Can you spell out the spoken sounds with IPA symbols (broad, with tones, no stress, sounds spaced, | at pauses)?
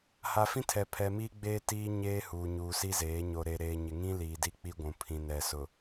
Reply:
h a˨ f ĩ˦ tʰ ɛ˨ pʰ ɛ˨ m iː˦ ɡ͡b eː˦ t iː˦ ɲ eː˦ h uː˨ ɲ uː˨ s i˦ z eː˨˦ ɲ o˨ ɾ e˨ ɾ eː˨ ɲ ɪ˨ ŋ ĩ˦ l iː˨ d i˦ k͡p i˦ ɡʷ ũ˨ pʰ ĩ˨ n ɛ˨ s ʊ˨